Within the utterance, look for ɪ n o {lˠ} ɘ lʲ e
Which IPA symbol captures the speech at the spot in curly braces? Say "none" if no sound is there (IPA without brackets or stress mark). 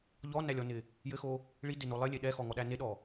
lˠ